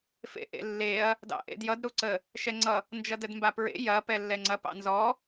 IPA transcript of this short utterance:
f ḛ ʔ ḛ lː e ɐ̯ | d ɑ̰ ʔ ḛ d j ʌ d ɾ u ǀ ə | ʃ ɛ ŋ͡ǀ ʌ | n d͡ʒ ʌ d ə d m b a p ɹ ḛ j ɐ p ɛ lː ɛ ŋ͡ǀ ɐ p ɑ̰ n z ɔ

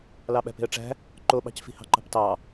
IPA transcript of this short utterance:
l ɑ ɓ æ̤ p e̤ ə̯ ʈ͡ʂ æ̤ | ǃ o ɓ ɑ̤ c f i̤ h ɑ̤ ǃ ɑ̤ p t ɑ

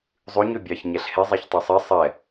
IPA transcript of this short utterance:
zˤ ʉ ɲ ø bʲ ɑ ç ɲ ɛ ɬ h e zˤ e ç tˤ ɵ sˤ e sˤ ɛ

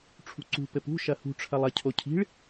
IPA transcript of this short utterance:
ʈ͡ʂʰ ṳ ǀ ṳ p ɘ p ṳ ʃ ɐ h ṳ ʈ͡ʂʰ ɐ lˠ ɐ cʰ o cʰ i̤ ɭ

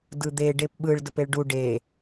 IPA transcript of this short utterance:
d ɯ d̪ e ɖ e p ɓ ɯ ɭ d ə p e ɭ ɖ u ɖ e

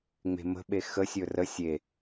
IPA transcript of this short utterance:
ŋ͡m e̤ m ə̤ ɓ e x ə sʲ ɵ r ə sʲ e

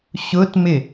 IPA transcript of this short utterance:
ɕ ʊ t m ɪ

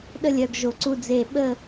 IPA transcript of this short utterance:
ɗ ə˥˧ lʲ œ˧ ɡ ʒ o˧ ǀ u˥˧ d͡z e˥˧ ɓ ə˥˧

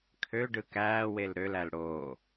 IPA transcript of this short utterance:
kʰ ø ɖ ɯ k æː w e l ɾ ø l æ l ɽ oː

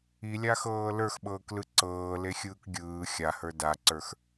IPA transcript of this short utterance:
i lʲ a x ɤː l ə˞ x ɓ ɤː k l ɯ ǀ ɤː l e xʲ ɯː k ɡʲ ɯː xʲ a h ə˞ d a ǀ ə˞ x

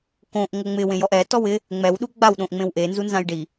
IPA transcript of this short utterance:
k õ ʔ ŋ o ŋ͡m ɪ w ẽ j ɔ ʔ ɛ t ɔ w ɪ | ŋ͡m ɛ w ɗ u ɡ͡b a w ɗ õ ʔ ŋ͡m ẽ w ʔ e n z u n z ã j ɖ i

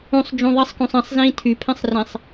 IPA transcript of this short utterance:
ũ sˤ d͡ʒ ũ ðˤ i sˤ k ũ sˤ ɛ̃ sˤ z ĩː tʰ y pʰ ɛ̃ sˤ r ẽ sˤ

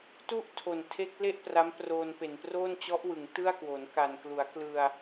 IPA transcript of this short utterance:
t u˥˩ ʔ tʰ o˨˩ n tʰ e˦˥ k̚ l e˥˩ ʔ p r a˦˥ m p r oː˧ n p e˨˩ n p r oː˥˩ n t͡ɕ ɔ˦˥ ʔ w ɯ˩˦ ŋ t ɯ˥˩ a̯ k w o˩˦ n k a˨˩ n k l u˩˦ a̯ k l ɯ˧ a̯

